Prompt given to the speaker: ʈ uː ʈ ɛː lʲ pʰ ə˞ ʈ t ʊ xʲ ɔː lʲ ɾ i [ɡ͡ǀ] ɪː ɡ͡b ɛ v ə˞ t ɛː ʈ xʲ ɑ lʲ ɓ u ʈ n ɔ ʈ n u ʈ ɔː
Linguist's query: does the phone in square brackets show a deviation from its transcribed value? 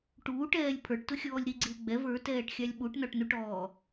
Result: no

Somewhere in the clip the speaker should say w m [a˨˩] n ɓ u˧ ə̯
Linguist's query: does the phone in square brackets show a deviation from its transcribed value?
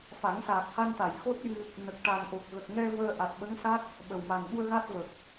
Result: no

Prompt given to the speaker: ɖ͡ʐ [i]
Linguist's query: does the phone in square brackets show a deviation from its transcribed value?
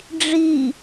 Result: no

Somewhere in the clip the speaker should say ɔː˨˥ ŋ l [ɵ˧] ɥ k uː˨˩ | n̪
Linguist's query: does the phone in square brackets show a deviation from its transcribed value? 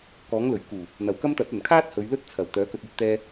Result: yes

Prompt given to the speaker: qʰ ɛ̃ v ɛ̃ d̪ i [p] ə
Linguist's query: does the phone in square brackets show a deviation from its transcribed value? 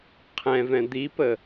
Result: no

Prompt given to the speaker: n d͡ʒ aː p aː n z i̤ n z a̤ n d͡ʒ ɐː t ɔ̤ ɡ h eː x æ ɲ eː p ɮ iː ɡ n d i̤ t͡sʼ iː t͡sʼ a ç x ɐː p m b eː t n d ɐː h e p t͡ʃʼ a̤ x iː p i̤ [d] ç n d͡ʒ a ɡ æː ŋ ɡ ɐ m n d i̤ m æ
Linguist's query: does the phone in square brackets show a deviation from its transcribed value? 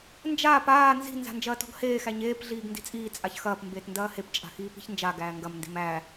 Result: yes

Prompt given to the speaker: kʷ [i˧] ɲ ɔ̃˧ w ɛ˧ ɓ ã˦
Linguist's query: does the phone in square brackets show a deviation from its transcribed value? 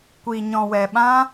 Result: no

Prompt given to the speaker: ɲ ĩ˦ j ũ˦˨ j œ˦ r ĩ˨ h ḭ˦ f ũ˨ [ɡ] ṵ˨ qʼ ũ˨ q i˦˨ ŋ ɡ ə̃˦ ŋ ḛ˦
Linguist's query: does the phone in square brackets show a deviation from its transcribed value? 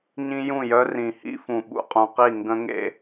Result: yes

